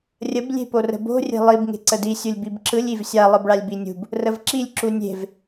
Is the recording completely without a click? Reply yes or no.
no